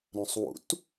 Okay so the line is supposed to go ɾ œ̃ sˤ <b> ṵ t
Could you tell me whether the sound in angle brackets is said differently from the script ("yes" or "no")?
yes